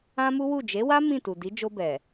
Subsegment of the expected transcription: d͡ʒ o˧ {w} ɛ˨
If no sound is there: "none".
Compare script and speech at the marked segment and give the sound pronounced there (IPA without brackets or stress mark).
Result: b